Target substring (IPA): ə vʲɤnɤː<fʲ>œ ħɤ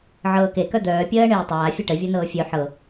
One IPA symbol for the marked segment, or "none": fʲ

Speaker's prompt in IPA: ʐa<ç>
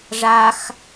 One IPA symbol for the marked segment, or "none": x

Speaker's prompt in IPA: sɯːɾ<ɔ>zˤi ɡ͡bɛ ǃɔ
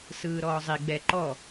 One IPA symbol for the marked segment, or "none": ɔː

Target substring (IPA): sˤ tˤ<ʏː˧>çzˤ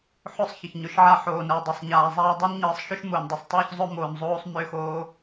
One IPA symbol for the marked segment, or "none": ʏː˧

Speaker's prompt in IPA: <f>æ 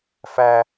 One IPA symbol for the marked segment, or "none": f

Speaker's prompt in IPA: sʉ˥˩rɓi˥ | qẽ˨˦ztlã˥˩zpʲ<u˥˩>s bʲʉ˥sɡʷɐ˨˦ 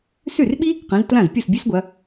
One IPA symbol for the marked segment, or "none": u˥˩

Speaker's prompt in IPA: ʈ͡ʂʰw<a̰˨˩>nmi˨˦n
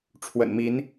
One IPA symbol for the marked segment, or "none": ə̰˨˩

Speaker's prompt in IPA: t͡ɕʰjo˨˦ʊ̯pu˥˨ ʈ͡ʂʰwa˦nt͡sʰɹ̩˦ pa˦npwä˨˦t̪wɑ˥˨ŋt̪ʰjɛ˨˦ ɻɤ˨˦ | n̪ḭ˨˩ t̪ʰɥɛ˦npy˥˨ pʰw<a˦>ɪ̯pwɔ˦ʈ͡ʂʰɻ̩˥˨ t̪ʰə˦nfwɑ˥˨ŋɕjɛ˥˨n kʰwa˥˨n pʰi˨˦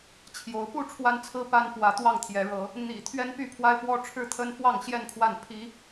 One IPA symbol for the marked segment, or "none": a˦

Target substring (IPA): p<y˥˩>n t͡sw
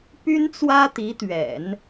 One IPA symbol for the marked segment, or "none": y˥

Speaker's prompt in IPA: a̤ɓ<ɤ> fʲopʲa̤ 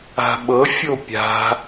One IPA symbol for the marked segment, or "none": ɤ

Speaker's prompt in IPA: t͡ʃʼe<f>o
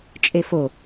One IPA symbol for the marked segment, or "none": f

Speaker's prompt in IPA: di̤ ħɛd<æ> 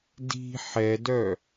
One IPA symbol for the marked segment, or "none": œ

